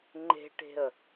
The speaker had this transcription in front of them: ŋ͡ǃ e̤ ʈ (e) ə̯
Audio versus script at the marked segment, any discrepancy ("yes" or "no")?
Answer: yes